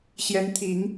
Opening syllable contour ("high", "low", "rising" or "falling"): rising